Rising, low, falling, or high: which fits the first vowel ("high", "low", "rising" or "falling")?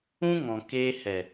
high